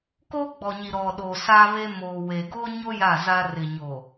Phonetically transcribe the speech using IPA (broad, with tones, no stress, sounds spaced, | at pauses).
k o˦ ɡ͡b ɔ˨ ɲ i˨ ɾ ɔ˨ ɗ o˨ s a˦ β e˦ m oː˨ w e˨ ɡ o˦ ɲ o˦ j a˦˨ z a˦ r ɪ˨ ɲ o˨